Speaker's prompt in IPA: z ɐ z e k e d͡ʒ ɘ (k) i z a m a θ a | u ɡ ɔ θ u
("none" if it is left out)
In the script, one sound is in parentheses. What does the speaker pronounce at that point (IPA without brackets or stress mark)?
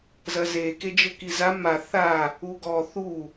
k